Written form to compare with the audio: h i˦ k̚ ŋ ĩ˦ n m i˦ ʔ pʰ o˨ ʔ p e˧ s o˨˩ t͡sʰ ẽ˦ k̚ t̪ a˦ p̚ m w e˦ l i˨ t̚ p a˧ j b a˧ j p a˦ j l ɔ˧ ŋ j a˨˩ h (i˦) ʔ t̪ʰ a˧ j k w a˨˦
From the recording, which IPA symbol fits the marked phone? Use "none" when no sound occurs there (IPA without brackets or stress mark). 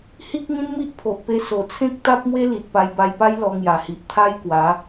i˨